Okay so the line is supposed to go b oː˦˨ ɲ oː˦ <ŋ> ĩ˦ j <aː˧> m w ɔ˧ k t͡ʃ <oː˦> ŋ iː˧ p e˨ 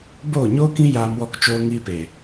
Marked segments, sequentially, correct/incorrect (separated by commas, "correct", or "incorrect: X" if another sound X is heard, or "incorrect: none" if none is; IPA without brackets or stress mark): incorrect: k, correct, incorrect: oː˧